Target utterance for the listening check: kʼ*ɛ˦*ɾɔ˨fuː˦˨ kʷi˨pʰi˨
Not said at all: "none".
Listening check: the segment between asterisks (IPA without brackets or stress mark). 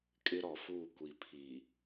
ɪ˦